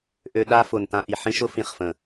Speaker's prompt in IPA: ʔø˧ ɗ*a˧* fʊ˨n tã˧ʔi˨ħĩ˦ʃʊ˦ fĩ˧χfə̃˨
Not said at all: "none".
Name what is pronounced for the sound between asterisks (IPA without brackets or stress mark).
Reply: a˦